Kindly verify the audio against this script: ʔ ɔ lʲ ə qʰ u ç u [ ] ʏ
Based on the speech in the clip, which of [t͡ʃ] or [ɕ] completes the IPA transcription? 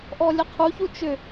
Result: t͡ʃ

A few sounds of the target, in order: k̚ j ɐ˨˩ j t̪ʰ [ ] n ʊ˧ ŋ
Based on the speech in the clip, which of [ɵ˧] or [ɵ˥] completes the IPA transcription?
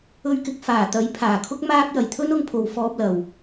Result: ɵ˥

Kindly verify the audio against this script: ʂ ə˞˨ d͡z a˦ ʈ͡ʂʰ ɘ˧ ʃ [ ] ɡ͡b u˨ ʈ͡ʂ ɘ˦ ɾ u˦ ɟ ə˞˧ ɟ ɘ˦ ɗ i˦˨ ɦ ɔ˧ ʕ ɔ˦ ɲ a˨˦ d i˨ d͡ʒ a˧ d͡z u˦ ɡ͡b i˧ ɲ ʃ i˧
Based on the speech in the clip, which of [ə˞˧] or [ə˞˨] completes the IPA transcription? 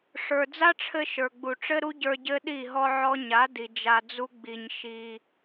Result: ə˞˨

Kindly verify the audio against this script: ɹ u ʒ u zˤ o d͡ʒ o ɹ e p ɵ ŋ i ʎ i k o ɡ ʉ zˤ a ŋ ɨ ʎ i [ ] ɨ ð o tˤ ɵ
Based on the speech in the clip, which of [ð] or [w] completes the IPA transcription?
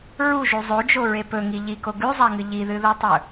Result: ð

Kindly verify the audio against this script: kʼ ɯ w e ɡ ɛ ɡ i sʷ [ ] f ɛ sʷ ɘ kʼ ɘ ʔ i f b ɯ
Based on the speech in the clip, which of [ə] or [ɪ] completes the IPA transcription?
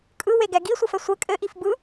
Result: ə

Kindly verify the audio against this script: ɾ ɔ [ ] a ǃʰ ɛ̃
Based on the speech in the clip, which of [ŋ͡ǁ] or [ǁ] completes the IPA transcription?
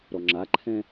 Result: ŋ͡ǁ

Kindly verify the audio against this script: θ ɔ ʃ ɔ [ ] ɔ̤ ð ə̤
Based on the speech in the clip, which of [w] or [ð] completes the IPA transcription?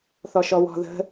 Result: w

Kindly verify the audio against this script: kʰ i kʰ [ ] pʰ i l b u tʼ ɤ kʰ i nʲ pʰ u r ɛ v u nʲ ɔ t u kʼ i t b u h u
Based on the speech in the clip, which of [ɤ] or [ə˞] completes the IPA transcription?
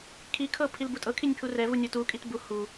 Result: ɤ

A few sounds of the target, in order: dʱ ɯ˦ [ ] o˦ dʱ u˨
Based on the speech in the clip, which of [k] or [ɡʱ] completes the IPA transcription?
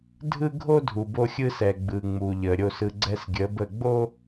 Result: ɡʱ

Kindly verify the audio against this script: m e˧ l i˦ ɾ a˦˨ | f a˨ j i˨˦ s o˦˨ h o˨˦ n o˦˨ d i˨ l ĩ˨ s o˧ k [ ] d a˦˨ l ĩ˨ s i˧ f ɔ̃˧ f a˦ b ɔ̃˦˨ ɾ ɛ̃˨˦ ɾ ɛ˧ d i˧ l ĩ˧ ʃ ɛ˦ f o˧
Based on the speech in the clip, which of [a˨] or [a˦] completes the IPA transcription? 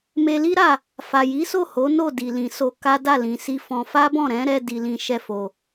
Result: a˦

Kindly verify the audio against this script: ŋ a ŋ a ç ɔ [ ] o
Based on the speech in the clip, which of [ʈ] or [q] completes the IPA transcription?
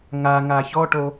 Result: ʈ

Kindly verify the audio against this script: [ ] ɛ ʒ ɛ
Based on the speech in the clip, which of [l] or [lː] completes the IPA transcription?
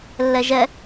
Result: lː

